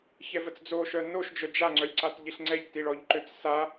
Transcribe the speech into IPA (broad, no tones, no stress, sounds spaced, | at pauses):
ç ɛ v ə t͡s d͡z o ʃ œ n o ʃ d͡ʒ œ d͡ʒ a ŋ͡ǀ œ lʲ ǀ a t ʎ i ɬ ŋ͡ǀ ɛ ʎ t i ɭ ɔ ʎ ǃ ø t͡s s a